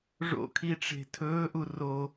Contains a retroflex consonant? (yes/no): yes